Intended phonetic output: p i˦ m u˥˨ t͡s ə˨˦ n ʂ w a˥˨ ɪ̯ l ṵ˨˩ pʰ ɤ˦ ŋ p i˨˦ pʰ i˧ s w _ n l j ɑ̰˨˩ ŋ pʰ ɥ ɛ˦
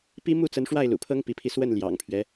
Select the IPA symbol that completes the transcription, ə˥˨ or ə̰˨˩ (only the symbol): ə˥˨